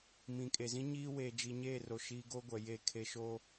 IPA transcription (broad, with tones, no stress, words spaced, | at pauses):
mĩ˨kʼe˨zĩ˦ ɲiː˦ weː˨d͡ʒi˨ɲeː˦˨ro˨ ʃi˦ ɡo˦ɡʷɛ˨ je˦˨ kʰe˦ʃo˦